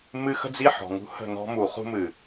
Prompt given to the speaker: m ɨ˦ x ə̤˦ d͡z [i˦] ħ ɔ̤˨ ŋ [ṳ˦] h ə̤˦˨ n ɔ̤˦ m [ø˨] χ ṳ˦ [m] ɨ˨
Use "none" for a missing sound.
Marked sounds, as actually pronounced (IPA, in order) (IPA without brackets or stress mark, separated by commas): i˦, ṳ˦, u˨, m